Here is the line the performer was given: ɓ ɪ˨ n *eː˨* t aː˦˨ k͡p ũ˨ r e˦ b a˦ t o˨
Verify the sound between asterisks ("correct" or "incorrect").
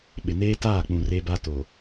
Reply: incorrect